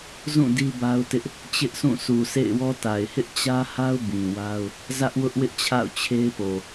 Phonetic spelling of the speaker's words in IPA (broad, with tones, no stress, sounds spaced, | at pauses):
z ũ˦˨ d i˦ b a˦ ʊ̯ t ɪ˦ ʔ | t͡ɕ ɪ˦ ʔ s ũ˦˨ s u˨ s ḛ˦˨ ɪ̯ w ɔ˦ t a˨ ɪ̯ h ɪ˦ ʔ t͡ɕ ä˦ h a˦ ʊ̯ b ĩ˨ w a˦ ʊ̯ | z ä˦ ʔ w ʊ˦ ʔ w ɪ˦ ʔ t͡ɕʰ a̰˦˨ ʊ̯ t͡ɕʰ e˦ ɪ̯ p o˨